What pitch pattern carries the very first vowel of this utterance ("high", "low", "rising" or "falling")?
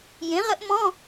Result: rising